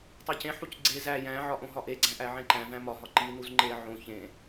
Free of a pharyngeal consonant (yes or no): no